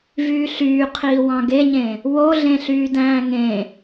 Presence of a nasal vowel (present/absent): present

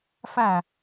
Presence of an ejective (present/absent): absent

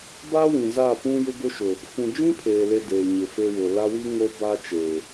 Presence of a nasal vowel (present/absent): present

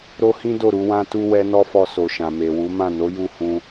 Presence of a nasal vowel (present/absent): present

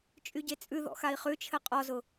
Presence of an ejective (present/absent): present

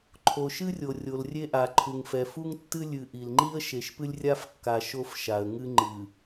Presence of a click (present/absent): present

